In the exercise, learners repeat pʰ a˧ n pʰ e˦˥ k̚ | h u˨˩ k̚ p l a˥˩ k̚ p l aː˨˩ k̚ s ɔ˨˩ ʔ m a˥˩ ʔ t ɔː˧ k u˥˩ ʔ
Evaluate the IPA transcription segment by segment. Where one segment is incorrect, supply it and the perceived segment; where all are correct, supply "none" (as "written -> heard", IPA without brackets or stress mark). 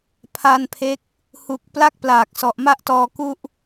none